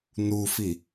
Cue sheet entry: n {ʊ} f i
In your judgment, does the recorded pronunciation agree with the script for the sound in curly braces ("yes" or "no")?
no